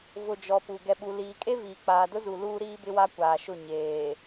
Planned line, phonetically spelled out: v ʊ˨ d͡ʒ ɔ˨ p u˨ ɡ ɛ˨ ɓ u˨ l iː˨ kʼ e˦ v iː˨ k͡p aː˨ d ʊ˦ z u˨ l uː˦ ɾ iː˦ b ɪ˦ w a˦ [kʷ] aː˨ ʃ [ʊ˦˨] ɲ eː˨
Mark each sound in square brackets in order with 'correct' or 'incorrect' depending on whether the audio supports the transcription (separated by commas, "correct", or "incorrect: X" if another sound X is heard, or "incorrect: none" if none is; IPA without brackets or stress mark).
correct, correct